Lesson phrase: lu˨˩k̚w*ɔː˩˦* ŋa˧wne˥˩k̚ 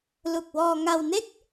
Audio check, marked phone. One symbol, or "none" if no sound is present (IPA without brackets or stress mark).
ɔː˧